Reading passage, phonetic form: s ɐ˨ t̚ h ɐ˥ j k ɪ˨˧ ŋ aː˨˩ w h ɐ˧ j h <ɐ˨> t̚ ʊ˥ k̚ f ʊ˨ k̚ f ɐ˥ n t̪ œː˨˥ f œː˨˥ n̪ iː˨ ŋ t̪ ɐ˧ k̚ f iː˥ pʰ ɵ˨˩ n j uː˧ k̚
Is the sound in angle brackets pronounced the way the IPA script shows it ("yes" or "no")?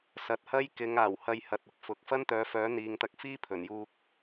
yes